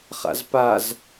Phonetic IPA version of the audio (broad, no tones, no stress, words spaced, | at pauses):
χa̰zpaz